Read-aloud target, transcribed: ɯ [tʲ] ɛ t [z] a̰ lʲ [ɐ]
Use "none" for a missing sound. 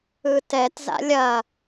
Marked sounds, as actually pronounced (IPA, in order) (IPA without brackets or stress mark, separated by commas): t, z, ɐ